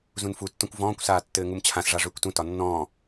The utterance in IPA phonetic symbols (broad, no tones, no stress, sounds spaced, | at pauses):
z ũ n f u tː ɔ̃ kʷ v ɔ̃ː kʷ s aː tː ɘː ŋ u m t͡ɕʰ ã s ʐ a ʐ ʏː kʷ t ũ t ɒ nː ɔ̃ː